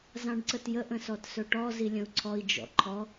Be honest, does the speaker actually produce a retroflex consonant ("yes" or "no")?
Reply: yes